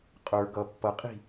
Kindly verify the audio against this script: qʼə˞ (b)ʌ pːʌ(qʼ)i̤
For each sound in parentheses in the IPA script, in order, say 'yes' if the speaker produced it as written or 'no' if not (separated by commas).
no, yes